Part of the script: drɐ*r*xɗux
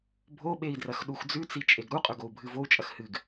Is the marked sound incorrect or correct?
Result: incorrect